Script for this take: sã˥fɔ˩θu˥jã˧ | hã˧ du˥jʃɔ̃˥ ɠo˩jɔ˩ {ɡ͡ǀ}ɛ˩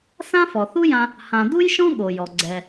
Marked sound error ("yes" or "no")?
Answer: no